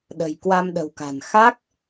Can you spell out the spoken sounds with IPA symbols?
ɗ ə̤˨˩ j k w a˧ m ɗ ə̤˨˩ w k a̤˨˩ n x a˦˥ k̚

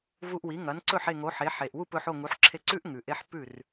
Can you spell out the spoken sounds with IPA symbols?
v u˧ ʔ w i˩˥ ŋ ɐ˩˥ n ǀ ɵ˥˩ ħ e˥˩ ŋ o˩˥ ħ e˩˥ ħ e˩ ʔ w u˥˩ p ɵ˧ ħ o˥˩ ŋ u˩˥ ħ ǁʰ e˧ ǀ ʉ˥ ʔ ŋ ʉ˩ ʔ e˧ ħ p ʉ˥˩ r

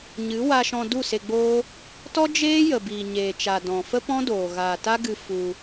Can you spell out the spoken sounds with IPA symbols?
ɲ ɨ˨˦ w a˧ ʃ ɔ̃˧ d u˦˨ s e˧ ɡ͡b oː˦ | t ɔ˦ d͡ʒ eː˦ j ə˨ b iː˨ ɲ eː˨ t͡ʃ a˨ d ɔ̃˨ f ə˦ p ɔ̃˦ d oː˨ ɣ aː˨ t a˦ ɡ ɨ˧ f u˧

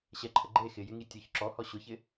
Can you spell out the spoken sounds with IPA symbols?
ɕ ɛ ǃʰ ə ɡ͡ǃ e x ɪ j ɪ ŋ i tʲ o ç ǁ ɔ h ɔ ɕ ʊ ç ɪ

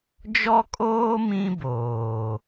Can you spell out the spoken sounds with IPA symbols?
d͡ʒ ɔ˦ kʼ oː˦ m ĩ˦ b oː˨

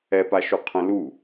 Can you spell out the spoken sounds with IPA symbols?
ɛ p a ʃ u qʰ ə̃ l u

